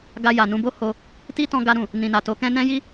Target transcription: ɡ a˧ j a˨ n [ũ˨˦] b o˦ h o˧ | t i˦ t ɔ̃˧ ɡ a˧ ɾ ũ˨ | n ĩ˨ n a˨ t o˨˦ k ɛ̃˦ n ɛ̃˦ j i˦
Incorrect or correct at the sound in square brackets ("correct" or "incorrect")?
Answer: incorrect